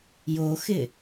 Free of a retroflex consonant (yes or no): yes